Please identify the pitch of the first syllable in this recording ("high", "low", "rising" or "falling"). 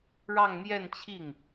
falling